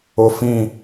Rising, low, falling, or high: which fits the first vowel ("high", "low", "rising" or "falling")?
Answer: low